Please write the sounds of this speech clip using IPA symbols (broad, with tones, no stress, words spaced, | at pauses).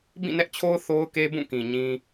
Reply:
bĩ˦˨nɛ˦ʔt͡ɕʰo˦ʊ̯ θo˦ʊ̯ke˦bũ˦˨kĩ˨ ɲĩ˦